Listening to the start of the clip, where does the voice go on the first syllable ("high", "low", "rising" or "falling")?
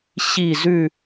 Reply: falling